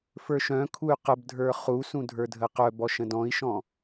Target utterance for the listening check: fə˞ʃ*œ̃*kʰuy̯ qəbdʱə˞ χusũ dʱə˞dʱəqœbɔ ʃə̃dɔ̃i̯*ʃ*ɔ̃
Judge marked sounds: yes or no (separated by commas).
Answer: yes, yes